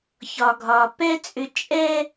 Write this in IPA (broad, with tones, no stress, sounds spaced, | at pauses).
ç ɒ˨ ɡʱ ɒ˨ p ɛ˦ t͡sʼ ʏ˧ t͡ʃʼ ɛ˦